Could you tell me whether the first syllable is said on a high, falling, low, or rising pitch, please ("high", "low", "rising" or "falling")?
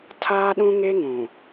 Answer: high